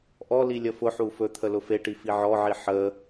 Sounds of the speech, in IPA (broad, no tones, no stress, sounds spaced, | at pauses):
ʔ ɔ l i lʲ ə f ʊ ħ u f ɵ t̪ʰ ə l ʊ f e ʈ i f i ʕ ɔ ʕ i ħ ə